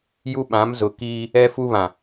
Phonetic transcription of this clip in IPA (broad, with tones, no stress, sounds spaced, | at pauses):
j u˦ ɓ ã˨˦ m z ʊ˨ k iː˦ | ɛ˦ f u˦ β ã˨